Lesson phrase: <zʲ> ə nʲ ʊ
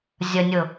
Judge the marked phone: correct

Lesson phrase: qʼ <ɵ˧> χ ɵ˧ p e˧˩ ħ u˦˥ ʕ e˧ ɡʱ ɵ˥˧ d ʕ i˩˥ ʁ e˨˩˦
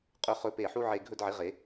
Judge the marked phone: correct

